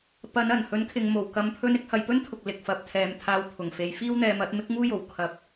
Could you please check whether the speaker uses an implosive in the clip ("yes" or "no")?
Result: no